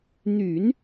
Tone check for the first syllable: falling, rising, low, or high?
low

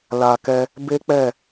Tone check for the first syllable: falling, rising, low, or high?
low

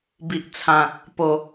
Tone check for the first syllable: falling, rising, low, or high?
low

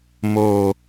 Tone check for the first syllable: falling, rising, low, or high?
high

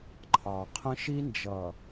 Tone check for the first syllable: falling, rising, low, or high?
low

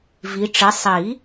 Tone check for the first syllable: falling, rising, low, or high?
rising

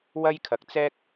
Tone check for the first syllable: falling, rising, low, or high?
high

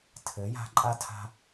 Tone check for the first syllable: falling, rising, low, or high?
rising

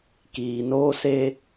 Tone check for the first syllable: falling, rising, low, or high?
low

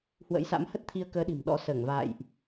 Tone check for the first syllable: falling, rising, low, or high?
rising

